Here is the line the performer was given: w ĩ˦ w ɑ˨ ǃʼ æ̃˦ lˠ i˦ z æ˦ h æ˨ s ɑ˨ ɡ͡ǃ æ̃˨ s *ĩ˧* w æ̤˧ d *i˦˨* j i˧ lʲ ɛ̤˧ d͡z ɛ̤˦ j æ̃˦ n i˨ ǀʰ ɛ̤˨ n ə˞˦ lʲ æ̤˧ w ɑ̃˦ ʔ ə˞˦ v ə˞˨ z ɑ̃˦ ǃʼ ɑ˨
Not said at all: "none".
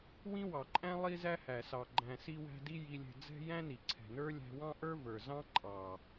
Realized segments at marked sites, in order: i˧, i˦

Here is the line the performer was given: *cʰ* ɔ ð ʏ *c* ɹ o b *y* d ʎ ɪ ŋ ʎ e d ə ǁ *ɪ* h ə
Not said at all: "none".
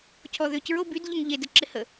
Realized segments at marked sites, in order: cʰ, c, y, ɪ

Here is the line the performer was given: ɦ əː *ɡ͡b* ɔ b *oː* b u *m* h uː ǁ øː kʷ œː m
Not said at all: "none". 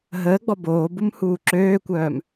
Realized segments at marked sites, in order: ɡ͡b, oː, m

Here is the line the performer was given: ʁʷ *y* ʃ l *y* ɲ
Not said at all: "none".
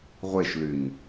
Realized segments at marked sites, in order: e, y

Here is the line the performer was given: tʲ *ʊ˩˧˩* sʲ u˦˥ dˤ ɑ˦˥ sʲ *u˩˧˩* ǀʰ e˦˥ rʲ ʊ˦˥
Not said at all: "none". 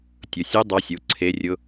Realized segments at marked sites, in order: ʊ˩˧˩, u˩˧˩

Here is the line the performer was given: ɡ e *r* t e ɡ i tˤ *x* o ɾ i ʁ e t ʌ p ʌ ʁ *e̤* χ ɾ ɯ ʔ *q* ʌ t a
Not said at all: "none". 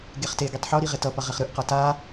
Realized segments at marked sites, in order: χ, ħ, e, q

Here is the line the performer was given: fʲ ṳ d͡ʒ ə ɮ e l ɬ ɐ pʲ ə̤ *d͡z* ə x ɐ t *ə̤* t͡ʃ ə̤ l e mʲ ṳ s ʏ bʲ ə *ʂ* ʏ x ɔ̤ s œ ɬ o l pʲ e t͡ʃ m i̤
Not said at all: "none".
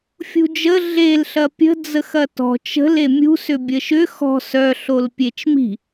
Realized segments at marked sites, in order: d͡z, ɔ̤, ʃ

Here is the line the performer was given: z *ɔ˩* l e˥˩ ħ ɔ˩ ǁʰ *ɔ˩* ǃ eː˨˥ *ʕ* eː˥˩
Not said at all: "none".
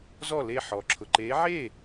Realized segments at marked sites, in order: ɔ˥˩, ʊ˩, ʕ

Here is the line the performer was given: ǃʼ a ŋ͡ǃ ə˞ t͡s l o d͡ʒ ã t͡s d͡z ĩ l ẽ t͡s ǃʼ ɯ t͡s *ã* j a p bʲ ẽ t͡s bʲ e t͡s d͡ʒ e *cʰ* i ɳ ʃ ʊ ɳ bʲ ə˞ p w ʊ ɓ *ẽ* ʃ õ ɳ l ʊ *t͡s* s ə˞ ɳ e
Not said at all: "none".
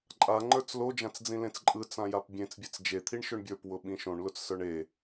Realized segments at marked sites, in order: ã, t̪ʰ, ĩ, t͡s

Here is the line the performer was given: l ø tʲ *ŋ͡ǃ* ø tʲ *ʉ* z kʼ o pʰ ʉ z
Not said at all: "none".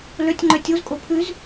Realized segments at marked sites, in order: ŋ͡ǃ, u

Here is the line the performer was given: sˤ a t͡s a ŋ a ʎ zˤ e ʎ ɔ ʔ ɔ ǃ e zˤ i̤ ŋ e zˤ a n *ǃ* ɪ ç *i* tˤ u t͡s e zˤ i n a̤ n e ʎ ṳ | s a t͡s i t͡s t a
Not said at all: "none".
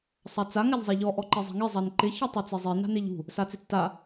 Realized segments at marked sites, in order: ǃ, i

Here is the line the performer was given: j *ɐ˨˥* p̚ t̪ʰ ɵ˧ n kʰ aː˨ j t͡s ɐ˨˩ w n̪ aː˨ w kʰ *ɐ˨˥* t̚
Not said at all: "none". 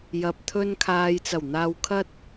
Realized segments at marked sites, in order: ɐ˨, ɐ˧

